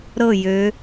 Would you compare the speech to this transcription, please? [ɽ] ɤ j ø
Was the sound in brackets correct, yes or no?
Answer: no